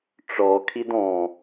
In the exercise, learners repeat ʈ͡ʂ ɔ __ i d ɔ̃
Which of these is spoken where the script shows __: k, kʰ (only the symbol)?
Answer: kʰ